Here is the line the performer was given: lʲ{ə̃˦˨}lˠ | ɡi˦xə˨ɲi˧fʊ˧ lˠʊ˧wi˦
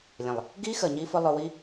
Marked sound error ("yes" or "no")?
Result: yes